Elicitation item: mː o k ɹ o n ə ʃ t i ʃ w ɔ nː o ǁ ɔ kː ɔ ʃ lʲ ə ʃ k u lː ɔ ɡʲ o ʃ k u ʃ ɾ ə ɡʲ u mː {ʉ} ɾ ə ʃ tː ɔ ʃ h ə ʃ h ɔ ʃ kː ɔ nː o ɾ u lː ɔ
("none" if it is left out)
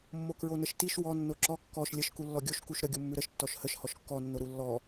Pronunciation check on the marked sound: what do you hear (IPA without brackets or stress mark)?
ʉ